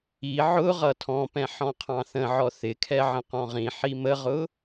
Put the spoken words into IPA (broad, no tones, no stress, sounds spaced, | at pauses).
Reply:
i ʕ ʊ ʁ ʌ tʰ ɔ̃ p ɛ̃ ħ ɔ̃ qʰ ɑ̃ θ ə̃ ʕ ɔ θ ɪ kʰ ɛ ʕ ə̃ q ɔ̃ ʁ ĩ ħ i m ə ʁ ʊ